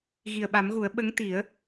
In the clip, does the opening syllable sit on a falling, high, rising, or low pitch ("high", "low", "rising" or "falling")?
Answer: low